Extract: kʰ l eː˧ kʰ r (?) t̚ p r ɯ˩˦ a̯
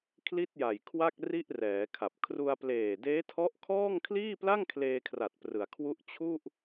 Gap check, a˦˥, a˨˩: a˨˩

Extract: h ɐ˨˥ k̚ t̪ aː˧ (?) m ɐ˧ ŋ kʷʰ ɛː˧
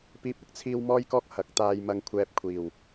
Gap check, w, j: j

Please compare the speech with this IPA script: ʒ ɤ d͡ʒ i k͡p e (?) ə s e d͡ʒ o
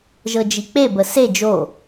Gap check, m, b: b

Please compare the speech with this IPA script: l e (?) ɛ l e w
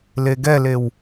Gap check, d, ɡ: ɡ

